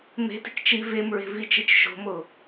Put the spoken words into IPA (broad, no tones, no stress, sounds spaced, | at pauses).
m e̤ t i̤ k t͡ʃ i v e m ɹ e̤ v i t͡ʃ i t͡ʃ ʃ o̤ m o